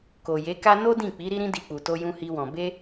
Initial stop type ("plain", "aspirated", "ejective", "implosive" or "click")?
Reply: plain